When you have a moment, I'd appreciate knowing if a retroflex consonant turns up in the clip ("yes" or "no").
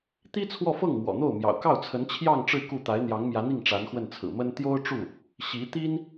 yes